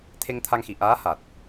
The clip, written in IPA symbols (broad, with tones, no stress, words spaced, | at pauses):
t̪ʰe˧ŋ t̪ʰa˧ŋxi˨˩˨ ʔaː˧˥ha˨˩t̚